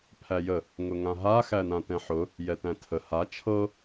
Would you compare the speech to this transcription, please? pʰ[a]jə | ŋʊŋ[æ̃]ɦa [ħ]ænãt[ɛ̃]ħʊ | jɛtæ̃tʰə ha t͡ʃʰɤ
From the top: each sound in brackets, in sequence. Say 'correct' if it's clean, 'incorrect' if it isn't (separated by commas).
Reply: incorrect, incorrect, incorrect, correct